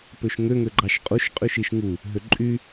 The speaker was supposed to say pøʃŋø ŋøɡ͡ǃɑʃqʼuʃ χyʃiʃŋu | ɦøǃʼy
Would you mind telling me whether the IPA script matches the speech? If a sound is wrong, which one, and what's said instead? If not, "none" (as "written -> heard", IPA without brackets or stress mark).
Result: χ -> qʼ